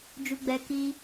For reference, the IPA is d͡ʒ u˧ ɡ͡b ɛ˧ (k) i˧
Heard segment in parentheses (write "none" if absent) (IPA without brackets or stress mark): k